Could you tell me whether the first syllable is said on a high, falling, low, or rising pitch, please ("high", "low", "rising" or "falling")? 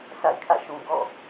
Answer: falling